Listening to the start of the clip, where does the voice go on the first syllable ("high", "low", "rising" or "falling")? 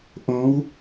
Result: rising